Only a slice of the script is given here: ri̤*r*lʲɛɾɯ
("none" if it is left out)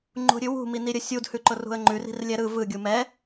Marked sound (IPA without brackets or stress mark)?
r